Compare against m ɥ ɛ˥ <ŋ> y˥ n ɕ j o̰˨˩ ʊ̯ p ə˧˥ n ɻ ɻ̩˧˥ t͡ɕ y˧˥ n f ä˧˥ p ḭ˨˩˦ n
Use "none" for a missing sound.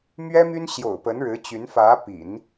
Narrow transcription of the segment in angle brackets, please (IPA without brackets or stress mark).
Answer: m